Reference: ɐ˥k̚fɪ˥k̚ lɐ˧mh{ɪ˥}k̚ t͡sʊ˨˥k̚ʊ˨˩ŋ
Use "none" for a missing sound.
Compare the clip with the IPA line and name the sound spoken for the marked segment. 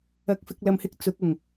ɪ˥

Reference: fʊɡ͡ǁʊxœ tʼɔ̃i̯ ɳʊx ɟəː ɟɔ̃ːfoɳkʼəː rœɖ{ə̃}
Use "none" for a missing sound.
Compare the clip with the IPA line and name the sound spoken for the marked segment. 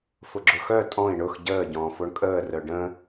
ə̃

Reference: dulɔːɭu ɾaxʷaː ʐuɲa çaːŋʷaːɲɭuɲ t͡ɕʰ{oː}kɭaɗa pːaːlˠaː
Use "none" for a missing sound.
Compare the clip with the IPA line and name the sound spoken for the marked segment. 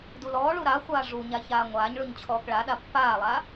ɔː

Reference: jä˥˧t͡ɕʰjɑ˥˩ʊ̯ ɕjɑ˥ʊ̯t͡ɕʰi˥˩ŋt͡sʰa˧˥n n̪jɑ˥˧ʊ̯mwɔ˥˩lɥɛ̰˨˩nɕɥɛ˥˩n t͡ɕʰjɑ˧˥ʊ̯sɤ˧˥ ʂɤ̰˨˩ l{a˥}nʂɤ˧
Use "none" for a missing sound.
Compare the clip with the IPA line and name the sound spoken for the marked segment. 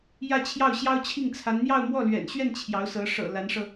a˧˥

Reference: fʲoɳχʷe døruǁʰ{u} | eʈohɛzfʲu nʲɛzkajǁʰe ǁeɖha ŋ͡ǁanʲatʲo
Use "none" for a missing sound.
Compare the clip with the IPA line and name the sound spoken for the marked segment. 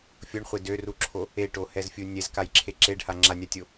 o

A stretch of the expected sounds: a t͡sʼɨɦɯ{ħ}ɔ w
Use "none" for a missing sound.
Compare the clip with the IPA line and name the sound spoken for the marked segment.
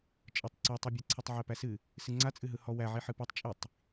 h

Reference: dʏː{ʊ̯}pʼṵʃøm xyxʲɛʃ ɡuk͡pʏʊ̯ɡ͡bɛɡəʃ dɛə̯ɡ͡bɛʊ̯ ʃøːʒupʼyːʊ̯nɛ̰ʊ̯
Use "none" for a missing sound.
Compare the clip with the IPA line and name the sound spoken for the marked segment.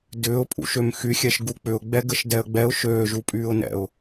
ʊ̯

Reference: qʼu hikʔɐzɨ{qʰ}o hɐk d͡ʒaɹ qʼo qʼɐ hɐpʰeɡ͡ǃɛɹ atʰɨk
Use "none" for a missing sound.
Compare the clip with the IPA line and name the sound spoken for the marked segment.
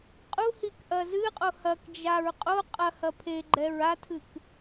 qʼ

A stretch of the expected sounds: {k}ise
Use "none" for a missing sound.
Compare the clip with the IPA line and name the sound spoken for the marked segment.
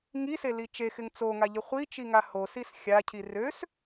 ŋ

